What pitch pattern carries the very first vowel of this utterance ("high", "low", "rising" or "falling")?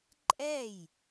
falling